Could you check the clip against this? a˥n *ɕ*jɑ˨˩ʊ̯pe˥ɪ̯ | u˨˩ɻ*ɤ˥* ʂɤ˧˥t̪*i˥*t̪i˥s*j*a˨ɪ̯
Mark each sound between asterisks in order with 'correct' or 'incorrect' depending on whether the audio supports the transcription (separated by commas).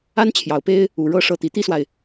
incorrect, correct, incorrect, incorrect